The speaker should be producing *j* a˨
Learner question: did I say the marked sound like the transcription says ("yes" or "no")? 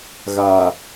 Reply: no